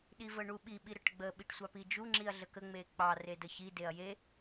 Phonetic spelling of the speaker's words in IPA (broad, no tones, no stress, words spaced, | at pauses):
ɗivəɳuɓi ɓiɾəʈɡ͡bə ɓiʈsʷɑpid͡ʒu ŋ͡ǁiɐ̯ɮəkə ŋ͡mek͡pɑ redəçi deɐ̯je